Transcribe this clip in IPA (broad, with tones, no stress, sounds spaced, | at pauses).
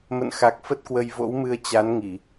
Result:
m ə̰˧˨ n x a˨˩ k̚ f ə˦˥ t̚ k w ə˧ j v o̰˧˥ w m ɨ˧ ə̯ t͡ɕ a˨˦ n ŋ i˧˩˨